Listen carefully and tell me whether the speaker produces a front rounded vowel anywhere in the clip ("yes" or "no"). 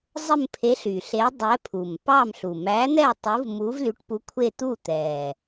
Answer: yes